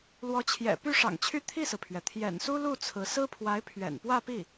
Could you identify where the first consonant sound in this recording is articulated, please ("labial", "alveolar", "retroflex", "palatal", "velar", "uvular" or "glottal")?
alveolar